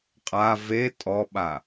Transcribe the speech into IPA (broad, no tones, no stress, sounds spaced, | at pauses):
qʼ a v e tʼ ɔ ɓ a